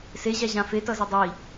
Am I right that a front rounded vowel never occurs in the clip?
yes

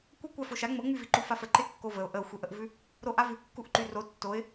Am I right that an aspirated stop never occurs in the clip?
yes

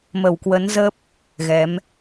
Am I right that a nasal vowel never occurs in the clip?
yes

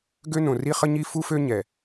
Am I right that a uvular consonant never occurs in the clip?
no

